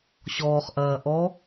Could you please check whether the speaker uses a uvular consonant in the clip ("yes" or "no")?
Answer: yes